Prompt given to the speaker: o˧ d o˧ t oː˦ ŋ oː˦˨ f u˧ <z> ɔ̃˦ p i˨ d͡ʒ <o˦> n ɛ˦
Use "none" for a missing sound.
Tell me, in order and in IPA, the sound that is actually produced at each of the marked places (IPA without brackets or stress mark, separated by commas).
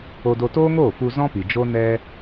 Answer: z, o˦